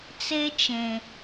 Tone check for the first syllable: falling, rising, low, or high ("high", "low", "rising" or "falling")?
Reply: high